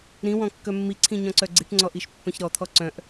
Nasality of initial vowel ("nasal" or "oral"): nasal